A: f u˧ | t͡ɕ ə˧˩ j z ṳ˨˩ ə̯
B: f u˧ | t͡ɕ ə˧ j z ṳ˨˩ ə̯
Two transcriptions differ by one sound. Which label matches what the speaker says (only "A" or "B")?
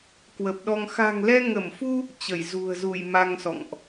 A